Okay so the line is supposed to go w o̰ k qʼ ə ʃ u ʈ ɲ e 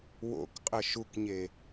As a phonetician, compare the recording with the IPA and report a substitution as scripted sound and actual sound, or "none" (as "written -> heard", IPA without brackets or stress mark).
ʈ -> k